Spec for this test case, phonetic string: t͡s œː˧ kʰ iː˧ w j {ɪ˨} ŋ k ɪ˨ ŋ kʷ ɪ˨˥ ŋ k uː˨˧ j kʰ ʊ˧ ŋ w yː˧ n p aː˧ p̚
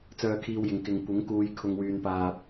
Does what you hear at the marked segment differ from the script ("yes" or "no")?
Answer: no